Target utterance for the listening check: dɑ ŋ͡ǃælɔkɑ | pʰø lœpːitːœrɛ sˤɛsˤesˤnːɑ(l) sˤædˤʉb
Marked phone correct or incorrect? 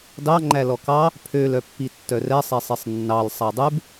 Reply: correct